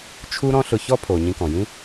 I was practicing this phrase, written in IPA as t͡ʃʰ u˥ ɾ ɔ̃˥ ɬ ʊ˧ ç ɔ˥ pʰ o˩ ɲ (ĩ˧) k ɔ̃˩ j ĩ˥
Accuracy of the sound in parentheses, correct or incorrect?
correct